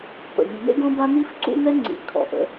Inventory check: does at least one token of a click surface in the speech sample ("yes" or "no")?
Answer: yes